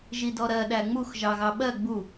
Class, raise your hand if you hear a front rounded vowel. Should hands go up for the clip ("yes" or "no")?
no